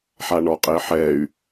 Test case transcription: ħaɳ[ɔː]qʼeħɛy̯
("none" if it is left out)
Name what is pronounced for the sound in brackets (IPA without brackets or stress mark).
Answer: ɔ